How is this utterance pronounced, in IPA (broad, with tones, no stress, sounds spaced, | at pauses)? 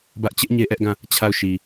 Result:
b ä˦ ʔ t͡ɕ ɪ˦ ʔ ɲ e˦ ʔ ɛ˦ ʔ ɡ ã˦˨ | t͡ɕʰ a˦˨ ʊ̯ ʃ i˨